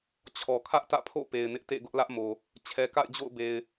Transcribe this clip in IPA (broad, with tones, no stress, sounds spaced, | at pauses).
t͡ɕʰ ɔ˨ kʰ ä˦ ʔ t ä̰˦˨ pʰ o̰˦˨ p e˨ ɪ̯ n ɪ˦ ʔ t ḛ˦˨ ɡ ʊ˦ ʔ l ä˦ ʔ m o˨ | t͡ɕʰ ɛ˨ k a̰˦˨ ɪ̯ d͡ʑ o̰˦˨ ʊ̯ b e˨ ɪ̯